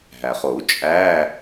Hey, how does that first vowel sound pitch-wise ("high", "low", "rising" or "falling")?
low